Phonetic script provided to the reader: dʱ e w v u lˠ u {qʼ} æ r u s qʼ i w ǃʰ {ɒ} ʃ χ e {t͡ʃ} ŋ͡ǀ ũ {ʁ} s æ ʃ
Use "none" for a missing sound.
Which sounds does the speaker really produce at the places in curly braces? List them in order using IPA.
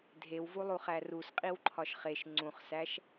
χ, ɒ, ʃ, χ

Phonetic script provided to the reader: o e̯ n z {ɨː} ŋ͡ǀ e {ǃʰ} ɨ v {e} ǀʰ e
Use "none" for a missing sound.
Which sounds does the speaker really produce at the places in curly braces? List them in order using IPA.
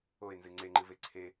ɨ, ŋ͡ǃ, e

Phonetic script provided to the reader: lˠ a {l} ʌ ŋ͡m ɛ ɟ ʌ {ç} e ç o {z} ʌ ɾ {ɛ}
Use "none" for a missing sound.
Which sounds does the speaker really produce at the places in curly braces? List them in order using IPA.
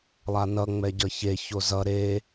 n, ç, z, e

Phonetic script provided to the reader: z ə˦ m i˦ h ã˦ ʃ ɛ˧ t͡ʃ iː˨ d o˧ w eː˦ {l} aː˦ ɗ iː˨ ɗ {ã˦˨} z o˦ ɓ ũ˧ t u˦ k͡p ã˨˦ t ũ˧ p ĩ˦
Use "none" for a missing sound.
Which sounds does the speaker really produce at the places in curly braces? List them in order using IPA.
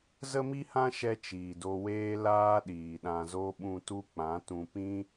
l, ã˧

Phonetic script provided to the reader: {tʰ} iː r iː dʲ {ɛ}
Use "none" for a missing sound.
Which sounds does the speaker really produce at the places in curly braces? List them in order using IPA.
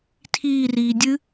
tʰ, ɨ

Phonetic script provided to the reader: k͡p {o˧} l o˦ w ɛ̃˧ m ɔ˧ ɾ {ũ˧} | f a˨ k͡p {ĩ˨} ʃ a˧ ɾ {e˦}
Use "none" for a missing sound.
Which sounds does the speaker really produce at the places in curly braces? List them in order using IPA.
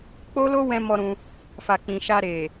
o˦, ũ˧, ĩ˨, e˨

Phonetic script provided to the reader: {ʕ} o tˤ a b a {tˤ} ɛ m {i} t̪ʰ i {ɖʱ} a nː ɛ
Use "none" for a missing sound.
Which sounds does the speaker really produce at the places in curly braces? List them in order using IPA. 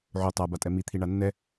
ʕ, tʼ, i, ɳ

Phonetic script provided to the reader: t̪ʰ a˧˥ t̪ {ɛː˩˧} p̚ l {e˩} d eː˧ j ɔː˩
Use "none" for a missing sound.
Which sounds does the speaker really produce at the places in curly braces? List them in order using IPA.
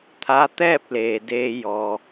ɛː˥˨, eː˩

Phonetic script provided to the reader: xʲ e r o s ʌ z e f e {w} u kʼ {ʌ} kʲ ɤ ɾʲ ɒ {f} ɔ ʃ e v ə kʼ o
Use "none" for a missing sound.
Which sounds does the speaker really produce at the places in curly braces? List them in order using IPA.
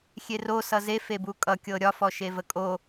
b, ʌ, f

